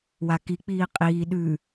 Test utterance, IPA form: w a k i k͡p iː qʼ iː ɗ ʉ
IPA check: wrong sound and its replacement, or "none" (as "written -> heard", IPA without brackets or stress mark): none